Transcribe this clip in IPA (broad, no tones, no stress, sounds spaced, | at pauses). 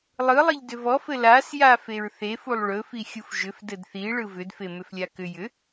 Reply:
lˠ ɯ lˠ i ʎ d ʏ v ɔ f ɘ l a s j a f e ɹ θ e f u lˠ ɭ ɵ f i xʲ u f ʒ ʏ f d ɘ d θ i ɭ ɯ v ʏ d f e m ʏ f lʲ a k ʏ j ʏ